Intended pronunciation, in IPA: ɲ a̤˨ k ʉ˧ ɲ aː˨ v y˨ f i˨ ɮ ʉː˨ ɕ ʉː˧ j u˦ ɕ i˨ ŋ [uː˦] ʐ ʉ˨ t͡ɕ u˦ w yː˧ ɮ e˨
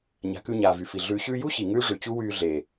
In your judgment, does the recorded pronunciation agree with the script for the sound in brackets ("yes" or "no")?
no